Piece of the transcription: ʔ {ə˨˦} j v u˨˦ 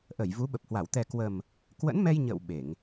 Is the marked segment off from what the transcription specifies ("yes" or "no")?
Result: yes